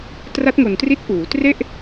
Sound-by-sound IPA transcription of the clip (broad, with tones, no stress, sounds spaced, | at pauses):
t r a˦˥ t̚ ŋ o˨˩ n t r i˦˥ t̚ ʔ uː˩˦ t r e˥˩ ʔ